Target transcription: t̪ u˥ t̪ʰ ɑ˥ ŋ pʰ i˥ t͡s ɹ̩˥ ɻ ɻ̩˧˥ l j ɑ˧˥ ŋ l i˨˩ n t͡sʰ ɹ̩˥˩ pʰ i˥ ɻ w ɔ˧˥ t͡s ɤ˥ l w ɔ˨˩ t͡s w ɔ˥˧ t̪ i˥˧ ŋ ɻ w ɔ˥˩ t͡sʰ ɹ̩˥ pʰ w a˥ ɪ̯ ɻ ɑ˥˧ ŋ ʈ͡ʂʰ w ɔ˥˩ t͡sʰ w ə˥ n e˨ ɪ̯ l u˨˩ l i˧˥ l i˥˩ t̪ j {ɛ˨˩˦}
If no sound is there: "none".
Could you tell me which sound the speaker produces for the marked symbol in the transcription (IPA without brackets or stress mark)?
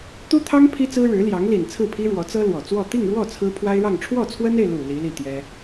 ɛ˥